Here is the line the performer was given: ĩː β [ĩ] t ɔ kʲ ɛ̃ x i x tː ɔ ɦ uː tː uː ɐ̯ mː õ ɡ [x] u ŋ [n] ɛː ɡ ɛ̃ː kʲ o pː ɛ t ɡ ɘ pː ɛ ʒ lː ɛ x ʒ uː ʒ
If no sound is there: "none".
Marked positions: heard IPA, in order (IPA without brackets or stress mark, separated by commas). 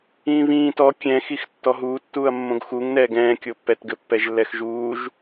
ĩː, x, n